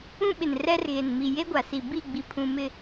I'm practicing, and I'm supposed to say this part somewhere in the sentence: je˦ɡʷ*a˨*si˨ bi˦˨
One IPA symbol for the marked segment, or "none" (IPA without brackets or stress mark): a˨